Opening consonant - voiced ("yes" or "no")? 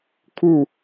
no